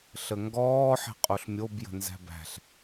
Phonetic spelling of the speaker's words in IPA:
ɬ ə ŋ ɡ ɔː ħ e̤ qʼ o ɬ mʲ o b j ə̤ n z æ̤ b æ̤ ɬ

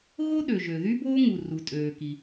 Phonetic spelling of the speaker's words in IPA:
ɣ o˥ ɗ ø˩ ʒ ø˩ ð y˥ b oː˥ ŋ u˩ r u˩ tʼ øː˩ k i˩

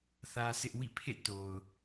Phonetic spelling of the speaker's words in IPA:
θ ä˦ s ɪ˦ ʔ w ḭ˦˨ pʰ ḛ˦˨ t o˨ ʊ̯

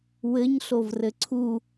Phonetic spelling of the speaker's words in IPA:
w ɘ ɲ ɬ o v r ɘ ǀʰ u

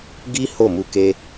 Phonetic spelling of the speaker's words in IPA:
ɡ i˦ h o˦˨ m u˧ k e˧

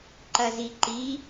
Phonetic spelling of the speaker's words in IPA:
ǃ ɐ z i ǃ i

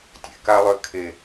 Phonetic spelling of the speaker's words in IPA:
tʲ ḛ k a lˠ ø kʰ e

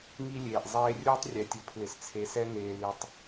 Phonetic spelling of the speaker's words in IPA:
ŋ i˦ lʲ eː˨ ʔ zˤ eː˦ rʲ uː˦ tˤ rʲ ɛ˨ tʲ ʊ˨˦ pʰ l ɪ˨ s t͡sʰ e˨ s ɛ˦ ŋ eː˨ l i˨ tˤ

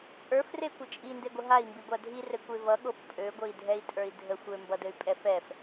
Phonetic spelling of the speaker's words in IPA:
t͡sʼ ə˞ f r e kʷ ɘ t͡ʃʼ i n d e ɡʷ ə ɦ a i̯ m b i ɡʷ a dʱ i r ɘ kʷ e v ʌ ɠ o f pʼ ø ɡʷ ɘ i̯ dʱ ɛ i̯ tʼ ə˞ i̯ dʱ ə xʷ ø m b ʌ d ɘ y̯ pʼ ɛ f ɛ f

